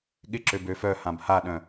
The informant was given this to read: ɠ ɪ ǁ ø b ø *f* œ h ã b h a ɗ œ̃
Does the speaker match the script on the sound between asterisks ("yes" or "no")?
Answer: yes